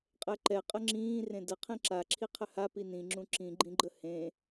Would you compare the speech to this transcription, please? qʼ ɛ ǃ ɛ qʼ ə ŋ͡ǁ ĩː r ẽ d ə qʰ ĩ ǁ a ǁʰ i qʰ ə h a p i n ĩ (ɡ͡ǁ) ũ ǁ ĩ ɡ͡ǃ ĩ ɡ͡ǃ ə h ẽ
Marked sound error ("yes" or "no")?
yes